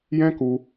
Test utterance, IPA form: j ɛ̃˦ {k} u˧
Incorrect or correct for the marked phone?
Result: correct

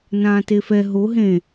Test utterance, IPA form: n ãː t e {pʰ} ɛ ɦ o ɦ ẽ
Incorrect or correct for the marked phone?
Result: incorrect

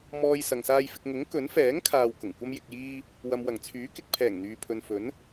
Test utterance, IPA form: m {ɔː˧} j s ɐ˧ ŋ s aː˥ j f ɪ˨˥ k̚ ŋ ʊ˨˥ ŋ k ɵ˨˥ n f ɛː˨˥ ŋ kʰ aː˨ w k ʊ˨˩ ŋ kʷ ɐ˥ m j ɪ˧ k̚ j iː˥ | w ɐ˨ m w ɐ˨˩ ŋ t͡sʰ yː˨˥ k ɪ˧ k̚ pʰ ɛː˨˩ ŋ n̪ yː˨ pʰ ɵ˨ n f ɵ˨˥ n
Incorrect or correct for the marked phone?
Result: correct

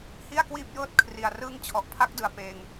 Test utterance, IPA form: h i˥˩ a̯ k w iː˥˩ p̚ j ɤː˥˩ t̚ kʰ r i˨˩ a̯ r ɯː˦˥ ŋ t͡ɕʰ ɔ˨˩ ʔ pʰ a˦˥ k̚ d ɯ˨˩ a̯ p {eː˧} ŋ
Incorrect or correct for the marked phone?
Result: correct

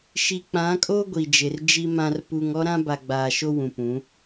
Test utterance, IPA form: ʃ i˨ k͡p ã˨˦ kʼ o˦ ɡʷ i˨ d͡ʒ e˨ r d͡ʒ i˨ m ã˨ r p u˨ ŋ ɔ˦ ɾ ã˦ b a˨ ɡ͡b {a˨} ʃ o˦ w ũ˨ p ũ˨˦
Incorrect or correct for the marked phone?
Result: incorrect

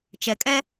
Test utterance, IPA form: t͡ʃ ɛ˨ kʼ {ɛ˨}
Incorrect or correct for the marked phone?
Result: incorrect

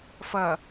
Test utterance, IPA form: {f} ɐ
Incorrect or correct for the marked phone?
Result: correct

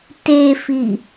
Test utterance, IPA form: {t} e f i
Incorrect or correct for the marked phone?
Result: correct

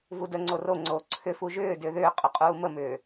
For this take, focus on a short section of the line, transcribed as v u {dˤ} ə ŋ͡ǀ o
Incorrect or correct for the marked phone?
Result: incorrect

